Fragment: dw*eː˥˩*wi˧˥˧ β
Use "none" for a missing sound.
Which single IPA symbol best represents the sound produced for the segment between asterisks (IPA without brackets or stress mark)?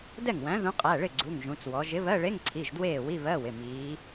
eː˥˩